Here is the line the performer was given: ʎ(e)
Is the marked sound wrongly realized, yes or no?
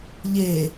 no